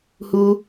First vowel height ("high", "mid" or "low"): high